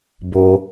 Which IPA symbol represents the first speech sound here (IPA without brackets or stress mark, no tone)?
b